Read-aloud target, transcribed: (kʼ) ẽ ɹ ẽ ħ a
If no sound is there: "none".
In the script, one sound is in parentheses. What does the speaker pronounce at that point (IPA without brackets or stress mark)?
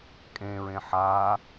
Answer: kʼ